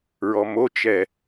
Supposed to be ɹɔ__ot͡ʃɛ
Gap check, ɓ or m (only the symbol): m